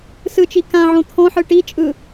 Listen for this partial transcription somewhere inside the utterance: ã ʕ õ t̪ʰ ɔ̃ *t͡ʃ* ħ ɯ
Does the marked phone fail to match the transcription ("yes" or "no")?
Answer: yes